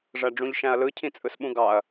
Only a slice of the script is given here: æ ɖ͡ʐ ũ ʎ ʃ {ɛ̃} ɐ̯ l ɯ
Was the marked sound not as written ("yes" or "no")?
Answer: yes